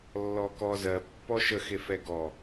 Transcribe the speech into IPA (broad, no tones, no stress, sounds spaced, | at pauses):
lː ɔ k ɔ z ɜ pː ɔ ʃ ə x e f ɛ ɡ ɔ